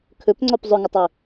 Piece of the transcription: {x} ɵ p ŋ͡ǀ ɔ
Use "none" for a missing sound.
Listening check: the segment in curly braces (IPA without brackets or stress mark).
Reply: kʰ